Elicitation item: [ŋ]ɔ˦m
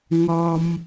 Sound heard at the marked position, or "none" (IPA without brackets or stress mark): ŋ